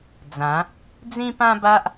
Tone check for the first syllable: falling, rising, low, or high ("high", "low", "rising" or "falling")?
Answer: rising